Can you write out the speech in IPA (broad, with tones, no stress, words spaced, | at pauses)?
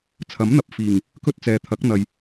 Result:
t͡sʰɐ˨˥mn̪ɐ˨p̚ fiː˨˩ŋ | kɵ˥t̚t͡sɛː˨t̪ʰɐ˨˥k̚n̪ɐ˨j